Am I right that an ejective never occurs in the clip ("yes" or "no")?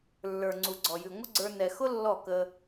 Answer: yes